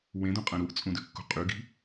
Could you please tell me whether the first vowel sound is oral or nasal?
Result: nasal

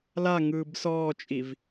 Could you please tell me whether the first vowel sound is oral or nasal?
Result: oral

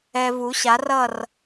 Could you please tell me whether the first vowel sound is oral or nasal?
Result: oral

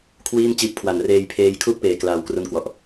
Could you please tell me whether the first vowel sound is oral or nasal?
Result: oral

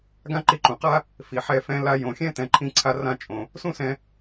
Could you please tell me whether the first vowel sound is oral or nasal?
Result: nasal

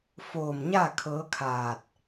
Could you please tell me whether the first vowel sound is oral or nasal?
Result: oral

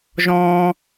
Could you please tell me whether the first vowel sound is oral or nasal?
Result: nasal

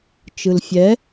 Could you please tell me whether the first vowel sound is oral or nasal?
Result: oral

